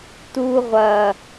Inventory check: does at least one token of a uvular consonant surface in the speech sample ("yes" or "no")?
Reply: yes